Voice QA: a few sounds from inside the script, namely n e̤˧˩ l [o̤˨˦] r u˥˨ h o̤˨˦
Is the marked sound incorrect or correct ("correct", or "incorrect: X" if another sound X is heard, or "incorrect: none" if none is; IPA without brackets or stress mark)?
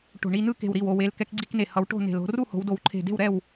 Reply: correct